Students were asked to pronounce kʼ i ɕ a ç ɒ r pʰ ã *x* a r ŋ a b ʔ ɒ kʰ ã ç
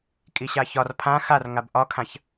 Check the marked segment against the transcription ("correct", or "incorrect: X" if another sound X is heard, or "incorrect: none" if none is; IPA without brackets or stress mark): correct